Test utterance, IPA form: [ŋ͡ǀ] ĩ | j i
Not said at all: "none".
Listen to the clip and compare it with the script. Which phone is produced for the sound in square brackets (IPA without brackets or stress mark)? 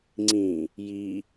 ŋ͡ǀ